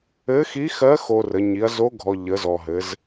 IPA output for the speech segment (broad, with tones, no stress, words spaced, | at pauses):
ɘ˧˥xi˧˥xɜ˧˥ xo˧rə˩˧ ɲi˩˧ɐ̯zo˧˥ɡʱɔ˩ ʎə˩˧zɔ˩ɦɘ˩˧z